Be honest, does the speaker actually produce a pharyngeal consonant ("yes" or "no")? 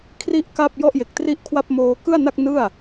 no